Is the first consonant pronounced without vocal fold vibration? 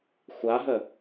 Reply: yes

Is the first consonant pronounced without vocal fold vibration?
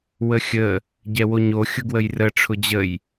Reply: no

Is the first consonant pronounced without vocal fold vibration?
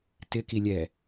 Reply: yes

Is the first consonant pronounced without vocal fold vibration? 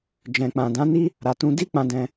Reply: no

